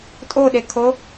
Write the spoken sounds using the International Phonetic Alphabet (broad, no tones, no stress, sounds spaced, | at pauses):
tʼ o ɗ e kʰ o